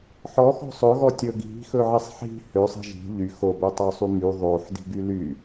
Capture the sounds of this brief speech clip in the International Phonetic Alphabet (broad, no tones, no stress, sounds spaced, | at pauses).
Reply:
ħ ɔ x ɔ̤ sˤ ɵ ɣ ɔ tʲ ɵ ɡ i̤ x ɵ ʕ i sˤ ħ i̤ h ø sˤ i̤ ʒ i̤ ʎ y x o b ø tˤ ø sˤ y m y ðˤ o ħ d i̤ ɡ y l y